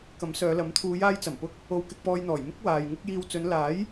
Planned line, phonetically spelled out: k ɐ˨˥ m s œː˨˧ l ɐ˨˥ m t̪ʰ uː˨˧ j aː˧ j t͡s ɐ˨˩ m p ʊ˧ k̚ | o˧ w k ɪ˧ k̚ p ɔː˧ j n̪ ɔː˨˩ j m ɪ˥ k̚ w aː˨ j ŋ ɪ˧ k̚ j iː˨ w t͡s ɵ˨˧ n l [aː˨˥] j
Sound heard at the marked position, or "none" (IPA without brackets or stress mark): aː˨˥